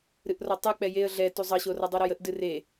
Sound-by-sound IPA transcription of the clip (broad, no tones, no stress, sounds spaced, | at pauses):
ɾ ɨ ʔ r ɔ tˤ ɨ k͡p ɛ j e ə̯ ɮ ɛ t u zˤ ʌ ɕ o r ʌ dˤ u ɾ ɔ j ə ʔ d ɨ r e